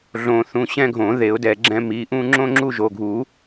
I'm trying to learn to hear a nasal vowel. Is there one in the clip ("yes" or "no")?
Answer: yes